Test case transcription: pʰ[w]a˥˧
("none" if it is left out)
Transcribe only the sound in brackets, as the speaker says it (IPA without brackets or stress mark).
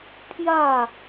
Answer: j